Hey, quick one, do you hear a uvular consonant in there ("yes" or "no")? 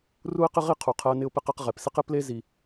yes